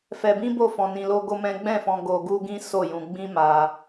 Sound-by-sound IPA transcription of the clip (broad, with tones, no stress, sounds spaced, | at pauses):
f ɛ˧ b ĩ˦ b o˦˨ f ɔ̃˧ n ĩ˧ l o˦ ɡ o˦ m ɛ̃˦ ɡ͡b ɛ̃˦˨ f ɔ̃˧ ɡ o˧ ɡ u˦ ɡ ĩ˦ s o˦˨ j ũ˧ ɡ͡b ĩ˦ m a˧